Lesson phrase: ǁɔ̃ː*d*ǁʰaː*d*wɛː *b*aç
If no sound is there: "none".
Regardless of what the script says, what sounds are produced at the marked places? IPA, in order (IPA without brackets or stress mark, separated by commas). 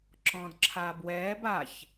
d, b, b